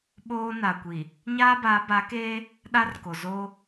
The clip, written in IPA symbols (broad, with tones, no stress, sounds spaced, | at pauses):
ɓ oː˦ n a˨ kʷ i˨ | ɲ aː˦ b a˨˦ b a˨˦ k eː˦ | ɗ a˦ r k o˨ z oː˦